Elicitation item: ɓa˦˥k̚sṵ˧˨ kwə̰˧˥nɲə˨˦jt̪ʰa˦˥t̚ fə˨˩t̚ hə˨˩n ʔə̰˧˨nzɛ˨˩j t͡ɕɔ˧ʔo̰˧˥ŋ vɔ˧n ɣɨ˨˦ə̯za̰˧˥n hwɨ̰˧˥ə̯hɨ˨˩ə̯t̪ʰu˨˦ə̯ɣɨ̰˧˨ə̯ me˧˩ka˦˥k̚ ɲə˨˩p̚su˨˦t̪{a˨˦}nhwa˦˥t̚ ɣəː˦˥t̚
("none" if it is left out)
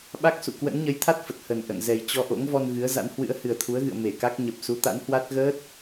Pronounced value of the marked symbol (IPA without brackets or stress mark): a̰˧˥